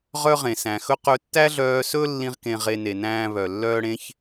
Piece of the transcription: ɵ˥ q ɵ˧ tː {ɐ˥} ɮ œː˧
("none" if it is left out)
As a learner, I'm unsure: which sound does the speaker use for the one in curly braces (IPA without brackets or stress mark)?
æ˥